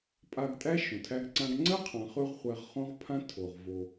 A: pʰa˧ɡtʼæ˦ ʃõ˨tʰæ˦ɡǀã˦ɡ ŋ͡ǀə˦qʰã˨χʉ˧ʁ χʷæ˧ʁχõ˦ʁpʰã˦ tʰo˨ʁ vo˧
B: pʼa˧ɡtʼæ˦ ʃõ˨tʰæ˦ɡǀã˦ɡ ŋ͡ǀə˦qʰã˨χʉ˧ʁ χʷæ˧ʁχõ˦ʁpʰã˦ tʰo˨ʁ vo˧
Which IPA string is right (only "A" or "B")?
B